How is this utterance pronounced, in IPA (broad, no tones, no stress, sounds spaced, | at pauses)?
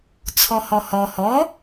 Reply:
t͡sʰ ɔ h ɔ h ɔ h ɔ